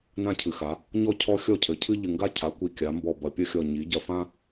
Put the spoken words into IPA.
nã˦cʰɨ˩˧xa˩˧ | ɲɔ˦ cʰɔ˦xʲɔ˦cʰɘ˩˧cʰɨ˦ ʎɨ˨˩ŋɡa˦cʰa˩˧kʷi˨˩ kʲa˩˧mbɔ˨˩ bɐ˨˩pʲɐ˦xʲɔ˨˩ ɲi˩˧ɟɐ˨˩fã˦

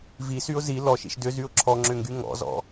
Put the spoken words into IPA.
visyʊ̯ zi lɔʃḭʃ dʏzyʊ̯ ǁʰɔŋ͡ǁʏŋɡy ŋɔ̰zɔ̰

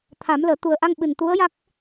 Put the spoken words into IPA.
t̪ʰa˨˩˦mləː˨˩˦ t̪u˨˩ə̯ʔa˧ŋɓɨ˨˩n t̪u˧˥ə̯ja˦˥k̚

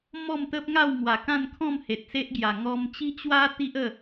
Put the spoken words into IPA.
mɔ˥˧mt̪ə˦p̚ŋa˥˧w ŋwa˨˩kã˥˧nkʰɔ̃˥˧m he˨t̚se˦ʔɡja˨˩ ŋɔ˧mt͡ɕi˦t͡ɕwa˦ t̪i˦ʔə˥˧

